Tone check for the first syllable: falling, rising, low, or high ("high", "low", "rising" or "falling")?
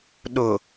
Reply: low